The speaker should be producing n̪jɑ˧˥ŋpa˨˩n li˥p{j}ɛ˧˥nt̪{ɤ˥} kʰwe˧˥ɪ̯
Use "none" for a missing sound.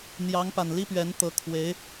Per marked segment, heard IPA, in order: ɥ, ɤ˧˥

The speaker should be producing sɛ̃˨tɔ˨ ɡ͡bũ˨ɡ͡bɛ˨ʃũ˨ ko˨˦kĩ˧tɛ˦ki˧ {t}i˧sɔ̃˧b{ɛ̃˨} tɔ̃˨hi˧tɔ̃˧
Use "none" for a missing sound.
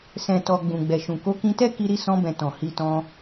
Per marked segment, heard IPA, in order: ɾ, ɛ̃˨

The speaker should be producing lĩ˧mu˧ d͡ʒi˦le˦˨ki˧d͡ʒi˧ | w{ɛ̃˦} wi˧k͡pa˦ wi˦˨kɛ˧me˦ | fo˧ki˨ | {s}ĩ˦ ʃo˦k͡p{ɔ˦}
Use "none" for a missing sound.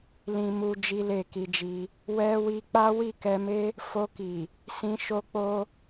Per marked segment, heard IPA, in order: ɛ˦, s, o˦

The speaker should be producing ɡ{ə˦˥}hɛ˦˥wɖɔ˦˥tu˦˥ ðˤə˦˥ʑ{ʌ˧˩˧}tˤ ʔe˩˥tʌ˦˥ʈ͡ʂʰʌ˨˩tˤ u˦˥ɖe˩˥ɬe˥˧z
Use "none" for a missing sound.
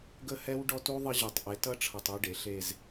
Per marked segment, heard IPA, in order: ə˦˥, ʌ˧˩˧

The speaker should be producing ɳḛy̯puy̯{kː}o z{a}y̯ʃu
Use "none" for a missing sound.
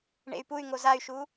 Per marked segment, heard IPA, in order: ŋ, a

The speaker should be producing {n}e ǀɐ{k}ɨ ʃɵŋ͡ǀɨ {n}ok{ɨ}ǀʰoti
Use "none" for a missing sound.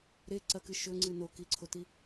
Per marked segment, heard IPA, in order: ɾ, k, n, i

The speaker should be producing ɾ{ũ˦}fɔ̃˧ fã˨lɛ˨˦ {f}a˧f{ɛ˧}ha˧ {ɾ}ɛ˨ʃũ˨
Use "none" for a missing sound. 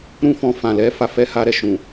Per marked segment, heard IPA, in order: ũ˦, f, ɛ˦, ɾ

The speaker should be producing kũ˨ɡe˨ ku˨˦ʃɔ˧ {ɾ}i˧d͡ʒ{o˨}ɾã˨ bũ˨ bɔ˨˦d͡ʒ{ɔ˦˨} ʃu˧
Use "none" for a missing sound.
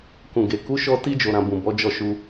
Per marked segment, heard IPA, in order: t, o˨, ɔ˦˨

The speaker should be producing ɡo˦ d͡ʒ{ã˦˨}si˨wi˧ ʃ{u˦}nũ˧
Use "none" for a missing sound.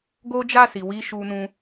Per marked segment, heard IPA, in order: a˦˨, u˧

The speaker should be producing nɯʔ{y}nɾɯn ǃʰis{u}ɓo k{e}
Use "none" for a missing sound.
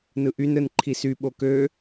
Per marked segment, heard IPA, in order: y, y, ø

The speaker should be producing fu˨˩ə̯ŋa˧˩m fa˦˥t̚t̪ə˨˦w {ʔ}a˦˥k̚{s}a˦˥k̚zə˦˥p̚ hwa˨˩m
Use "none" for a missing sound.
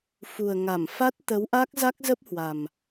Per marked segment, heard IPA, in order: ʔ, z

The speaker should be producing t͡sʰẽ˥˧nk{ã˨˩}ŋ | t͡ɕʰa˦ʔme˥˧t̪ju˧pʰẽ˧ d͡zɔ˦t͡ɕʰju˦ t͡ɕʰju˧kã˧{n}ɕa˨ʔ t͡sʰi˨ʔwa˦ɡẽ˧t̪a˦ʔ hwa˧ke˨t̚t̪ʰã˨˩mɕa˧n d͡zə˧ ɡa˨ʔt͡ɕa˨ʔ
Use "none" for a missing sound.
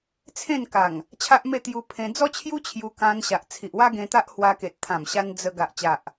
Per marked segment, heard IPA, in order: a˨˩, n

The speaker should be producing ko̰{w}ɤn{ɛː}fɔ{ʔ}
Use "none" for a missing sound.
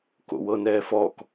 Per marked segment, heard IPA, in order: w, ɛː, k

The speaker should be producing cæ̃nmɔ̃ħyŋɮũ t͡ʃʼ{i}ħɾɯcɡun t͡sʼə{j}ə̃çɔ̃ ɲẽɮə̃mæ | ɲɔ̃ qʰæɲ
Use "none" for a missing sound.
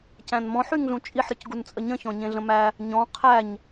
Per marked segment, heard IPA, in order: i, ɲ

